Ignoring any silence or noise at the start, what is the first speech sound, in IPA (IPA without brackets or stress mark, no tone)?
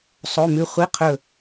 sˤ